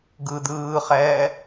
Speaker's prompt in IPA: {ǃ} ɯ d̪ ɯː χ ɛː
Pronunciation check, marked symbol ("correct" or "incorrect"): incorrect